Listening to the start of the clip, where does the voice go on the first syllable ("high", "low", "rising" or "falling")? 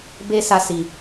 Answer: high